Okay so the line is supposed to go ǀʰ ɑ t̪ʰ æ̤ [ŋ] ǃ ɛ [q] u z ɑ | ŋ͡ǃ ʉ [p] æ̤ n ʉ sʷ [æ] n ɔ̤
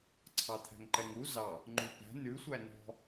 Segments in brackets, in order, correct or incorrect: correct, incorrect: ŋ, correct, correct

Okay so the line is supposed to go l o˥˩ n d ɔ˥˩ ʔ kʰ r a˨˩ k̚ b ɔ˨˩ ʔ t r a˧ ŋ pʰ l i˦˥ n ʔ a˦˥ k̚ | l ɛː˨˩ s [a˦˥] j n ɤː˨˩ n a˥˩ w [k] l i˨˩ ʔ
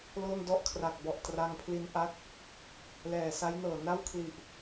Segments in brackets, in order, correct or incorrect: correct, incorrect: kʰ

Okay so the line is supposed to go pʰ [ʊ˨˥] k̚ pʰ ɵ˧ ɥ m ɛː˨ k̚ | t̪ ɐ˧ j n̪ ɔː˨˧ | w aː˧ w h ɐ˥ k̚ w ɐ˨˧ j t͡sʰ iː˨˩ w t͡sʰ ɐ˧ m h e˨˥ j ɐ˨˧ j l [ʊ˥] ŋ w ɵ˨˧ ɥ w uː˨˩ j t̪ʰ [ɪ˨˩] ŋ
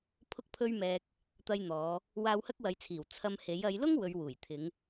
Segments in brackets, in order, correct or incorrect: incorrect: ʊ˧, correct, incorrect: ɪ˨˧

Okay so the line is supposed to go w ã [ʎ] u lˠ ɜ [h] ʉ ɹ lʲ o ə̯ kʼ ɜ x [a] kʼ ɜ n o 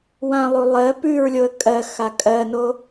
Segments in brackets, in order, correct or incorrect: incorrect: lˠ, incorrect: p, correct

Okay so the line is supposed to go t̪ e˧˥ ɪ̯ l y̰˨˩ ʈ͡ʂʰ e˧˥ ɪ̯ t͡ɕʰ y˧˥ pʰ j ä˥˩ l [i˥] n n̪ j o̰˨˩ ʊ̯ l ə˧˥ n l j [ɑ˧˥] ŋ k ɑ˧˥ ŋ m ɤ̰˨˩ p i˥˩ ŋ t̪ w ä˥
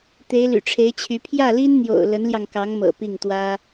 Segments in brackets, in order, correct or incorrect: correct, incorrect: ɑ˧

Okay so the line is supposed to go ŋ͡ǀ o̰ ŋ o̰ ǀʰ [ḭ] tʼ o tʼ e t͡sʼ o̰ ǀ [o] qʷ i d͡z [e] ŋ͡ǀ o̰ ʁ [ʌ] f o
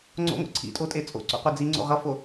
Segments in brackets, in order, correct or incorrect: correct, incorrect: o̰, incorrect: i, correct

